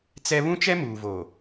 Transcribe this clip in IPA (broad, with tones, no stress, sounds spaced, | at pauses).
t͡s ɛ˦ β ũ˦ t͡ʃ ɛ˦ m uː˨ v o˨